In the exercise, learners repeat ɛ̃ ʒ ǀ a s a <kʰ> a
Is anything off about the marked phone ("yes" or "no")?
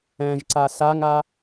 yes